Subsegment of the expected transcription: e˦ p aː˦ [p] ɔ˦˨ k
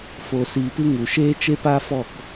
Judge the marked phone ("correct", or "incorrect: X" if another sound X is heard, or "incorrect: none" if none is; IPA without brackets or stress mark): incorrect: f